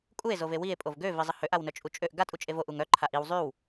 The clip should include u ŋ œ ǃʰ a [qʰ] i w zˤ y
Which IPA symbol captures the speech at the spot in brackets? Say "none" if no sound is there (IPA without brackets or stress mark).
ʔ